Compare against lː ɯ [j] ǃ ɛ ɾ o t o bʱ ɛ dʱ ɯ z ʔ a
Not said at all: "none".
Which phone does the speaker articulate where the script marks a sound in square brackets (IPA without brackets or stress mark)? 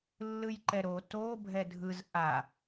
j